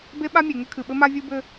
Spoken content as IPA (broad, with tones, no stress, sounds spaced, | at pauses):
b e˦ ɓ a˦ mʲ e˨ ŋ ɘ˦ kʰ ɨ˨ ɓ ɘ˦ m a˦ vʲ u˦ b ɘ˦